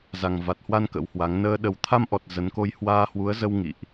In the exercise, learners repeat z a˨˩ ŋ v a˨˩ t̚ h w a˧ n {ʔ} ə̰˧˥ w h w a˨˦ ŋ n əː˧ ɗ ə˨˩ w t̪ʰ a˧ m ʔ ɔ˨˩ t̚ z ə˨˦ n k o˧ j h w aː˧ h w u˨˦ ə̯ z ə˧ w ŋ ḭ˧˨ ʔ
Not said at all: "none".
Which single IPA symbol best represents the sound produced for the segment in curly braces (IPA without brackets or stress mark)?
k